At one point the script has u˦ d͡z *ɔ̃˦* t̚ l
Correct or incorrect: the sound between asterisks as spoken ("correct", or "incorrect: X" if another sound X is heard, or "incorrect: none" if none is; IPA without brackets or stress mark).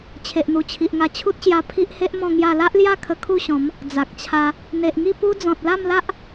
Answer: incorrect: ɔ̃˨